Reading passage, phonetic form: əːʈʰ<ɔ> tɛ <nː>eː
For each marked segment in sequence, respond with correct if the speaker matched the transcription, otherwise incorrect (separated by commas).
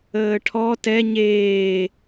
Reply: correct, incorrect